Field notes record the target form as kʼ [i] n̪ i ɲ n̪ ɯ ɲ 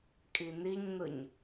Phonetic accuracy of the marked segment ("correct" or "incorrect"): correct